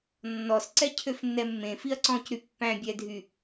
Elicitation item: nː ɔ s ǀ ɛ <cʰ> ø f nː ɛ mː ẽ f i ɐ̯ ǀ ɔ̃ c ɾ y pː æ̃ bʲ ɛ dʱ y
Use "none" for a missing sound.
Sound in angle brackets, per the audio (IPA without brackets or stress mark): cʰ